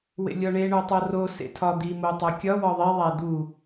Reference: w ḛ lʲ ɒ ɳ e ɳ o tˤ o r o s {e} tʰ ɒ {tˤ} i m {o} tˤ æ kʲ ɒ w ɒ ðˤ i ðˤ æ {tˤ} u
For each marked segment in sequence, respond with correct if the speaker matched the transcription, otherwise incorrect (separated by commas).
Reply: incorrect, incorrect, correct, incorrect